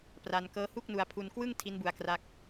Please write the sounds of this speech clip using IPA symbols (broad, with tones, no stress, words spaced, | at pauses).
pra˧nkɤː˦˥hu˥˩k̚ nu˧a̯pʰu˧nkwɯː˥˩ŋ tʰi˦˥nbu˧a̯kra˦˥k̚